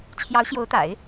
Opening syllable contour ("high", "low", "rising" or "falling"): rising